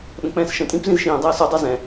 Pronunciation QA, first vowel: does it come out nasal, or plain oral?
nasal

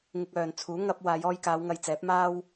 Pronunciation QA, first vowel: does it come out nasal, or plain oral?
oral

